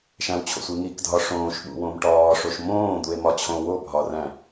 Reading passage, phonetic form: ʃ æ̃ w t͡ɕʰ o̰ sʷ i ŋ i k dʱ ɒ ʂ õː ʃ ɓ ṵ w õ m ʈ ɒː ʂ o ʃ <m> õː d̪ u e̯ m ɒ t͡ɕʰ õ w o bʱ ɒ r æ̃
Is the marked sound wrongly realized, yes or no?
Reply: no